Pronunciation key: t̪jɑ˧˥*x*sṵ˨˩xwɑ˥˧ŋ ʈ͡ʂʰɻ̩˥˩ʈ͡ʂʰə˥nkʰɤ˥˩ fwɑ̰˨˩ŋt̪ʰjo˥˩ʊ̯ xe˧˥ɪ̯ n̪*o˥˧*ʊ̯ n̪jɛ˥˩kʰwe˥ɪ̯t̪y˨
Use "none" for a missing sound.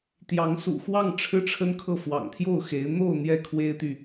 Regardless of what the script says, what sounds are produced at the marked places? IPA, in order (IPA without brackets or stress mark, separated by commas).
ŋ, o˥˧